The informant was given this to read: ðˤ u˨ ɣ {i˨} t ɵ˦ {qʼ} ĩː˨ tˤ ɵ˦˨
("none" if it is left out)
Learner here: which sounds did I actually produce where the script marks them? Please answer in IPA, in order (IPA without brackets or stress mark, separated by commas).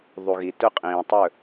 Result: i˨, qʼ